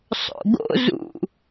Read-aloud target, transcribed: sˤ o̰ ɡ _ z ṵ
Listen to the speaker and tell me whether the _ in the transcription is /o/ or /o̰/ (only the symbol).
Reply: o̰